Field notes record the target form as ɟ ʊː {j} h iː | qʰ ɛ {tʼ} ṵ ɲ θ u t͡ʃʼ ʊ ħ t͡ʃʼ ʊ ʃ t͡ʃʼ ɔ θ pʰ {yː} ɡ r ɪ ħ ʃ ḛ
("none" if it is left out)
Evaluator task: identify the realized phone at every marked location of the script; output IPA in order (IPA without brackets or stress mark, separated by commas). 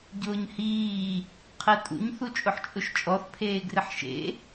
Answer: ɲ, tʼ, eː